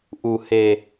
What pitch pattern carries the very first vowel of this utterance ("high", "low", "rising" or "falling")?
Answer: low